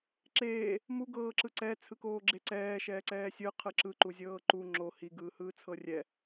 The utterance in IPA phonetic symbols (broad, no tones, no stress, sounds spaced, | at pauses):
ǁ eː | m u ɡ ɤː ǁ ɯ ǀ ɛ t͡sʰ ɯ k oː ɡ͡ǁ e ǀ ɛː ʃ ɛː ǀ ɛː sʲ ɯ qʰ ɯ ǁ ɯ ǃ u zʲ ɤː ǃ u ŋ͡ǁ o h i ɡ ɯː h ɯː t͡sʰ ɤ rʲ ɛ